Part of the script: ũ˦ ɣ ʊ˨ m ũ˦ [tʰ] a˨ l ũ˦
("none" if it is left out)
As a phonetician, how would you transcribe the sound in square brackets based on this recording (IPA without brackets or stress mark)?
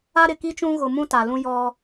t